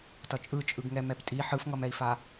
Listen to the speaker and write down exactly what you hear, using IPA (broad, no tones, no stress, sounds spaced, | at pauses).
t ʌ t͡ʃʼ ɯ t͡ʃʼ ɯ ɡ ŋ ɛ m ɛ p tʼ i ħ ɯ f ŋ ʌ m ɛ i̯ f a